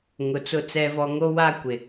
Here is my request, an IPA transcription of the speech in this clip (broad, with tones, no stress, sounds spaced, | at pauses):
ŋ ʊ˨ t͡s ʊ˦˨ t͡s ɛ˦ v ɔ˦ ŋ o˦ w a˦ kʷ ɪ˨